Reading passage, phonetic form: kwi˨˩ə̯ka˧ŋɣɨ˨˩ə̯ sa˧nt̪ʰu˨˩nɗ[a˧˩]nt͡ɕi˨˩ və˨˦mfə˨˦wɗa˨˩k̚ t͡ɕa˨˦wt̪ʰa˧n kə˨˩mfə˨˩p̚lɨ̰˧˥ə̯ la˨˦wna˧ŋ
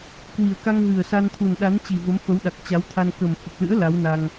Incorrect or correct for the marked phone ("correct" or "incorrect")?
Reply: incorrect